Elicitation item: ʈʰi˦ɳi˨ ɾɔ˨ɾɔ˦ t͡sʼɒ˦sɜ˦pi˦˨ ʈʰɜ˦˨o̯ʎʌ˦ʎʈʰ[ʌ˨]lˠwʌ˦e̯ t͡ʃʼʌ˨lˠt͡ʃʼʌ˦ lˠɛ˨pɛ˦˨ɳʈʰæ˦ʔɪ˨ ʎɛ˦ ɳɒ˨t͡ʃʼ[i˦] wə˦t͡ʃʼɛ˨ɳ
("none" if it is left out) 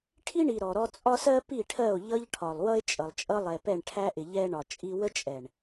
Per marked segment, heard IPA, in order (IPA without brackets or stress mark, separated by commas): ɒ˨, i˦